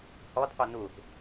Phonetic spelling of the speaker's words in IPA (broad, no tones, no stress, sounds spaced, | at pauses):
h ɔ d qʷ i n u θ